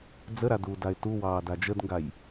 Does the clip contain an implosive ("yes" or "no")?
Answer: no